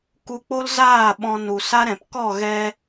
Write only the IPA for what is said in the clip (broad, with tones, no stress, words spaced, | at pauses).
ku˧k͡po˦lzaː˦˨ ɓɔ̃˧ nu˨sa˦ɾɛ̃˨p kɔ˦˨ ɣɛ˧